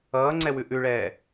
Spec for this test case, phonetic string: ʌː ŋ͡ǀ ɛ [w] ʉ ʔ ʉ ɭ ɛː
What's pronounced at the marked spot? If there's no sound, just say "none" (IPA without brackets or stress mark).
w